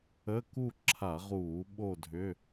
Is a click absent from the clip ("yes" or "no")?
no